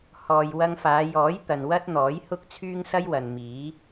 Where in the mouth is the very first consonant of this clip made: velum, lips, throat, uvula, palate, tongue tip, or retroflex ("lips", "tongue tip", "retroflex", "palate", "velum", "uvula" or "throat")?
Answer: throat